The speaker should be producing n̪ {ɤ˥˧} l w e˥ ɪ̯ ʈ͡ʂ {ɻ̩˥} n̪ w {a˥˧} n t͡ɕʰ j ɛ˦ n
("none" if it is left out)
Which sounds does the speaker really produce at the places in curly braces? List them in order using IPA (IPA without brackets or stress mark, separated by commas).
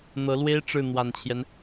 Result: ɤ˧˥, ɻ̩˥˩, a˨˩